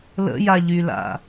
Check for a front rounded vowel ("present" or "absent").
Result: present